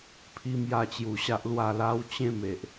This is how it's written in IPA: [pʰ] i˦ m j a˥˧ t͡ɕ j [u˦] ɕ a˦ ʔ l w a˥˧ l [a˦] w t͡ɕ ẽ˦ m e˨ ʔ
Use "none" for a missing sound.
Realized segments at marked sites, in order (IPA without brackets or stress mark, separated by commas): pʰ, u˧, a˦